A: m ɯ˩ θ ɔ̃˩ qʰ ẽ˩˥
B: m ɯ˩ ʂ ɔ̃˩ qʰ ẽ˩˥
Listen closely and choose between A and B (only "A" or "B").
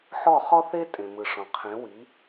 B